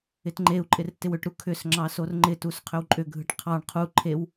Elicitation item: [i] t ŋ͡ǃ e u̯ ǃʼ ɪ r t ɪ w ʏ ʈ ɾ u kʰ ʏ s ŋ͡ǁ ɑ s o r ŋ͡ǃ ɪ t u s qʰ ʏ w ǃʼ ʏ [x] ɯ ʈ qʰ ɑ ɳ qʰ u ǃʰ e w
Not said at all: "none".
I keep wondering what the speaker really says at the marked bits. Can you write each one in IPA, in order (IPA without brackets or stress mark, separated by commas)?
ɪ, ɡʱ